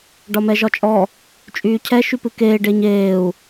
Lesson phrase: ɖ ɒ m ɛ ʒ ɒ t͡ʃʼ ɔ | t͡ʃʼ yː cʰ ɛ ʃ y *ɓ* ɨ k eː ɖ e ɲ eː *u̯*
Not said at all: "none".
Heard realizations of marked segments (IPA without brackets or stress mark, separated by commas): p, u̯